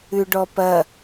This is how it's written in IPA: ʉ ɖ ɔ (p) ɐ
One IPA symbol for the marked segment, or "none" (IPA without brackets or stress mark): p